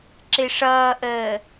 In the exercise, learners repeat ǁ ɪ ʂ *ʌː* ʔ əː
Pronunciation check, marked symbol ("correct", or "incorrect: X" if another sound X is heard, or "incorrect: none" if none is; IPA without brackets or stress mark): correct